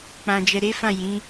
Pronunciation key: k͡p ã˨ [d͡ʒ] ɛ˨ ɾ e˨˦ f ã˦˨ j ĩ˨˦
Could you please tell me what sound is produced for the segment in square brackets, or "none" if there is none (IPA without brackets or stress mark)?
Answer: d͡ʒ